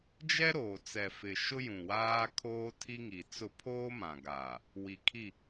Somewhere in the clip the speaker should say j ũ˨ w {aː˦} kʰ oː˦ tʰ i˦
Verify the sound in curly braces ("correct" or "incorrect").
correct